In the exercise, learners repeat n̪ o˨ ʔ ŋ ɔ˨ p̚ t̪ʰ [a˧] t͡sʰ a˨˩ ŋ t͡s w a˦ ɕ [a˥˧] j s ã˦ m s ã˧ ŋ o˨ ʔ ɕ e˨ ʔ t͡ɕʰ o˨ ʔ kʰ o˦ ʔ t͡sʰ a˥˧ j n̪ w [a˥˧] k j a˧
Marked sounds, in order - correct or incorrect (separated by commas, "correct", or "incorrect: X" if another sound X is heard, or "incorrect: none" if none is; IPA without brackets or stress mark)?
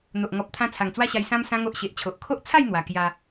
incorrect: ã˧, incorrect: a˧, incorrect: a˨˩